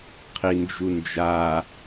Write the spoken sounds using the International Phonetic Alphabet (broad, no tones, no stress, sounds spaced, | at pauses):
qʰ i n d͡ʒ u n d͡ʒ a